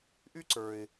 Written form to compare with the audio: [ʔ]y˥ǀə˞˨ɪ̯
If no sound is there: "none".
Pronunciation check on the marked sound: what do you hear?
ʔ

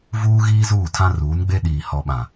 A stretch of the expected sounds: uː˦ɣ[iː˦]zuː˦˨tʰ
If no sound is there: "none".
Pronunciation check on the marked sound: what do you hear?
iː˦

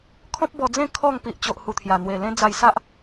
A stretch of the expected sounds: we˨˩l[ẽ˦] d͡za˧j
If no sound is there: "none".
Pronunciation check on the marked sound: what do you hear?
ẽ˦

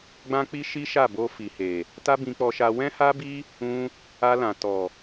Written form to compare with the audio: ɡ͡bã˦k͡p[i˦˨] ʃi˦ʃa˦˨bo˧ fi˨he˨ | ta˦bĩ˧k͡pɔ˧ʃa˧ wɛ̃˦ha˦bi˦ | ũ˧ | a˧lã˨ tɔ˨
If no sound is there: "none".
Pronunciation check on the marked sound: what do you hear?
i˦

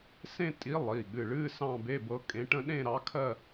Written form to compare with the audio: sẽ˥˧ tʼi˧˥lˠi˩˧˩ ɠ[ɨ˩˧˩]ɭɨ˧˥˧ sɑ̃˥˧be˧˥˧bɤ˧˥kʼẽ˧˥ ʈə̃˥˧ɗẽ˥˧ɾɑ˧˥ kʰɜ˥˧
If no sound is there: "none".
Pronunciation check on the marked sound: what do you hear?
ɨ˩˧˩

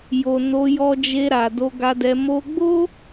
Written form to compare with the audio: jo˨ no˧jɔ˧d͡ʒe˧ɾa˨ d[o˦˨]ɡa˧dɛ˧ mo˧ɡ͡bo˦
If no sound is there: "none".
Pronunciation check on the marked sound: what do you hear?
o˧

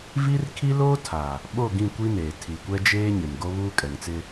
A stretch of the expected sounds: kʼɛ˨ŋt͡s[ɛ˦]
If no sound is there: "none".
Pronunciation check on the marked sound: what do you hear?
ɪ˦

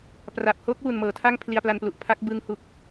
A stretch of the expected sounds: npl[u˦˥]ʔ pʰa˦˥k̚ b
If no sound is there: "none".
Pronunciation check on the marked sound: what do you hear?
u˨˩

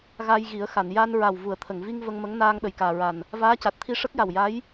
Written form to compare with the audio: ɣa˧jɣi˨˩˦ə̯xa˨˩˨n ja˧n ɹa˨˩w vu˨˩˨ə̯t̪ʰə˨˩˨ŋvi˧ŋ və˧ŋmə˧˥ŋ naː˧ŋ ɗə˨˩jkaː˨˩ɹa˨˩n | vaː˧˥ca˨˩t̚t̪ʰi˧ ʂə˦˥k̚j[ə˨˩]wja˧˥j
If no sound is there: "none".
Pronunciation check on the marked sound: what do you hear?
a˨˩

